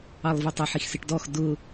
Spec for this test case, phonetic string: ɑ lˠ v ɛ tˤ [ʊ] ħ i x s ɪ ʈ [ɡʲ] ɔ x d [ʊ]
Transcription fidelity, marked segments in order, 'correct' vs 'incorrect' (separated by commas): incorrect, incorrect, correct